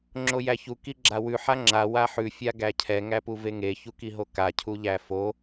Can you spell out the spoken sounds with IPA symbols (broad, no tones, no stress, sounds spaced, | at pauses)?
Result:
ŋ͡ǁ o j æ ç u k i ɡ͡ǁ a w ʉ ħ a ŋ͡ǁ a w a ħ ʉ fʲ a ɡ æ cʰ ɛ ŋ æ p u v e ŋ e ç u k i ɦ o k a cʰ u ʎ æ f o